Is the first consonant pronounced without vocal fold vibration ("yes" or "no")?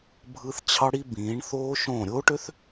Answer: no